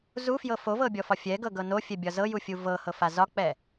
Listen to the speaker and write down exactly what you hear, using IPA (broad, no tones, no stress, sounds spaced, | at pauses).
z u f j ɤ f o v ɤ bʲ ɔ f ɒ fʲ ɛ ɡ ɤ ɡ ɤ n o fʲ ɛ bʲ ɒ z ɤ j u fʲ u v ɤ h ɤ f a z ɒ k͡p ɛ